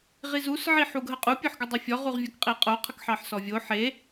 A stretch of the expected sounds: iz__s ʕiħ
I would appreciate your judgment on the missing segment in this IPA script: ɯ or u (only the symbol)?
u